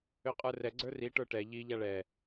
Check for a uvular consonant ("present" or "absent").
present